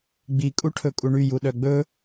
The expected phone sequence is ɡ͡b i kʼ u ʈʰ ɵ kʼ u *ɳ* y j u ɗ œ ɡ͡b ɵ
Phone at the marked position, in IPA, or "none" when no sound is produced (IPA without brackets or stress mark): ɳ